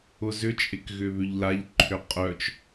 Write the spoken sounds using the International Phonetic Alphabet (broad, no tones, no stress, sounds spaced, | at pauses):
ʊ z ʏ t͡ʃʼ ɪ k ɣ ʏ β ʏ ʎ l a ʎ ǃʰ ʏ qʼ œ t͡ʃ